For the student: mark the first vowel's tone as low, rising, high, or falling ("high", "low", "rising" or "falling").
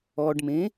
low